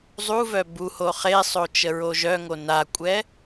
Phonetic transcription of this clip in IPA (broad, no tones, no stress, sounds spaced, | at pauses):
zˤ u v œ b u h o χ e sˤ o t͡ʃ ə ɹ o ʒ œ ŋ o n a kʷʼ ɛ